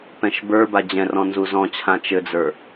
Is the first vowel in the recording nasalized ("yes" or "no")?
yes